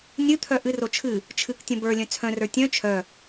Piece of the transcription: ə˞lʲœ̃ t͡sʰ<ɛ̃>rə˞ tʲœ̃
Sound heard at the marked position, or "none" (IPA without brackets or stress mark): œ̃